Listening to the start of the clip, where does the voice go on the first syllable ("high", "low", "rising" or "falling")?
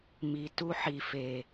low